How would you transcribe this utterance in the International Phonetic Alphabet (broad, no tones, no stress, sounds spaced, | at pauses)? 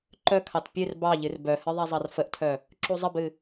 ǃ œ kʰ ɑ t pʲ ɨ r b ɑ ʎ ɨ r b œ h ɨ ðˤ a zˤ ɑ r f ə ʔ tʰ œ | ǁ u zˤ ə b ɨ